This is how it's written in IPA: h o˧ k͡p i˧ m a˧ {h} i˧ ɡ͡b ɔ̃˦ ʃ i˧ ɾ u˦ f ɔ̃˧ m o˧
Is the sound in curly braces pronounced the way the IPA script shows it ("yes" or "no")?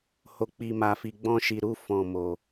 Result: no